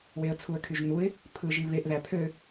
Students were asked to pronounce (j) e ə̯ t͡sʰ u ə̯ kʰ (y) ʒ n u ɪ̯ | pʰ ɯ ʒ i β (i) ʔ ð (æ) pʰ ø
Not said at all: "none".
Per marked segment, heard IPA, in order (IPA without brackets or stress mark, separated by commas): w, y, e, æ